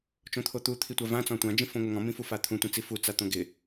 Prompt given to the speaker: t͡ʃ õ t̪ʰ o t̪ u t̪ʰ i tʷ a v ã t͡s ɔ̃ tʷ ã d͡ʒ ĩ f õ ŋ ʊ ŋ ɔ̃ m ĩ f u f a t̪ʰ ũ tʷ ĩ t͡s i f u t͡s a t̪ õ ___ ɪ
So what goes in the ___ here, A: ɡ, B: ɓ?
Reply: A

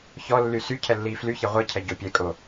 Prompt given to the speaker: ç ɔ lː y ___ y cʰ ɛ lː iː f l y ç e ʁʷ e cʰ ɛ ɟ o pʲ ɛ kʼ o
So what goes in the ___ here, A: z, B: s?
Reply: B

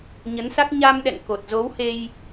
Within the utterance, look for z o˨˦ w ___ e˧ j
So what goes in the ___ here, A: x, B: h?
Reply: B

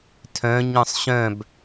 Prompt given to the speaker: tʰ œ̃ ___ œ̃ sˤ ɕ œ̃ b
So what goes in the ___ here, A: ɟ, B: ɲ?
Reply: B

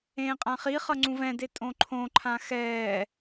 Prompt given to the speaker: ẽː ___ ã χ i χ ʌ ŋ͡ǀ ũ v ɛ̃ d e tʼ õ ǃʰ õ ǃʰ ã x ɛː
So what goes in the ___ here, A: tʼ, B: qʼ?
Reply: B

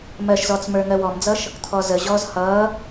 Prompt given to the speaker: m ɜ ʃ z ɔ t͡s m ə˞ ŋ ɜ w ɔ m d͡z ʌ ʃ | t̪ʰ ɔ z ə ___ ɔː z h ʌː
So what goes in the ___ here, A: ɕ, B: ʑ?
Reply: B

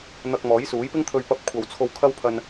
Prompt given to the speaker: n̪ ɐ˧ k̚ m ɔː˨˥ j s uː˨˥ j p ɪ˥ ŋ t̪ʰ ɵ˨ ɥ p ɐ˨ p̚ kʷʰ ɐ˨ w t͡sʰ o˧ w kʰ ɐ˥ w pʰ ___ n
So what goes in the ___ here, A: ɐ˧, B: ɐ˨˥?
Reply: A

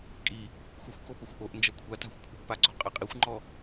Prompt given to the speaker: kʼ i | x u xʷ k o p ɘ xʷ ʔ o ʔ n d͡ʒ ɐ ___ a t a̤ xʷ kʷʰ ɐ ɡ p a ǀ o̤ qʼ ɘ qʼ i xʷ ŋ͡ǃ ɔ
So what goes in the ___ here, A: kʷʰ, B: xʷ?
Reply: A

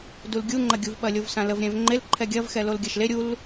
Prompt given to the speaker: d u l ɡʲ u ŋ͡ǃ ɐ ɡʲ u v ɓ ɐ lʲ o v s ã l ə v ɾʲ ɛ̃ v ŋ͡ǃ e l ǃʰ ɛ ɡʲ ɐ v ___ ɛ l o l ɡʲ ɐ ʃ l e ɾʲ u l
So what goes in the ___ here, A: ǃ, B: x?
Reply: B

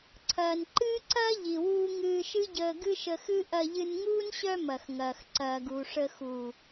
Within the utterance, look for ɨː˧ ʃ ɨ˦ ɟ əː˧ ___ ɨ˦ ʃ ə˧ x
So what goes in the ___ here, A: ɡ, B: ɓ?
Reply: A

